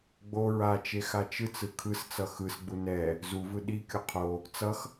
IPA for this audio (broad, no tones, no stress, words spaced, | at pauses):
ɡ͡bo ɹat͡ʃe xat͡ʃɯt͡sɯ kʰɯst͡sʌ xɯsɡ͡bu nɛ | zuvɯ ɗikʲo qʰo | t͡sʌx